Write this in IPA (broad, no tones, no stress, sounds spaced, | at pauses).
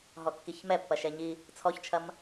ɦ ɔ kː i ç m ɛ pː ɐ ʃ ɛ ɲ i | t͡sʰ ɔ ç t͡ʃʰ ɐ m